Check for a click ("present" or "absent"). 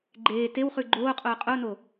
present